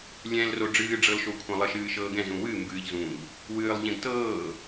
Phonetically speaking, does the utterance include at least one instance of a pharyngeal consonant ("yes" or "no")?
no